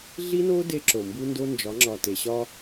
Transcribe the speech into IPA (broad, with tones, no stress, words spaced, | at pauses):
ɮi˦no˦ de˦ ǁo˨ mbu˦ndo˦nd͡ʒɒ˨˦ŋ͡ǁɒ˨ te˨ɕɒ˦